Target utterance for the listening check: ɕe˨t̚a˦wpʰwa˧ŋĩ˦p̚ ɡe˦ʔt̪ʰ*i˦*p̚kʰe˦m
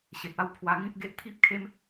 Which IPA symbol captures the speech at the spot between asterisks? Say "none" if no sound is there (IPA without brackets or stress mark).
i˦